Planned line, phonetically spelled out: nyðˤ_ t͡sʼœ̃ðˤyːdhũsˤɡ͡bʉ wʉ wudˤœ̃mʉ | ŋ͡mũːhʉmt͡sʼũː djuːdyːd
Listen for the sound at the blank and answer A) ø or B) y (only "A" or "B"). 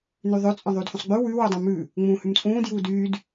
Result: A